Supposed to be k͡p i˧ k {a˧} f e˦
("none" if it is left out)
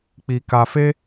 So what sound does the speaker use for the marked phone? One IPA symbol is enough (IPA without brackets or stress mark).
a˧